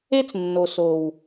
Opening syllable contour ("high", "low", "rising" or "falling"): high